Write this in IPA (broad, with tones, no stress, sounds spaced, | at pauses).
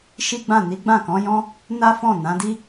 ʃ i˦ ɡ͡b ã˦˨ n i˨˦ ɡ͡b ã˦˨ k ɔ̃˨˦ j ɔ̃˦ | n a˦ f ɔ̃˦˨ n ã˨˦ d i˦